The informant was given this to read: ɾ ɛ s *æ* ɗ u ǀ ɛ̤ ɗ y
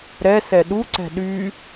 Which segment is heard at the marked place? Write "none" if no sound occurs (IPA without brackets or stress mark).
ɛ